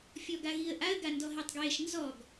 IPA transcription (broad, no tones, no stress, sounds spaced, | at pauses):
fʲ ɔ ɡ a ɣ i ə̯ ʔ a ə̯ ɡ a n d ɔ ɦ e tˤ ɡ w e ʃ n z ɔ ɡ